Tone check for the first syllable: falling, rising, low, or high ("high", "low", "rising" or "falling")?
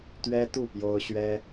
high